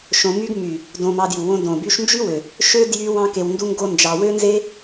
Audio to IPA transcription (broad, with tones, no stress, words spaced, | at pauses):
ʃõ˧my˦ɡ my˨ | dõ˧mɑ˧dju˨ wõ˧dõ˨ by˧ʃnd͡ʒy˦wø˨ | ʃø˦ djy˦wɑ̃˦ke˧w ndu˦ŋɡo˦nd͡ʒɑ˧ wø˦nze˦